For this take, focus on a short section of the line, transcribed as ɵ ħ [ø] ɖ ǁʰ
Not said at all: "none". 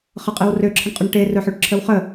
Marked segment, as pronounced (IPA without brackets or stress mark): ø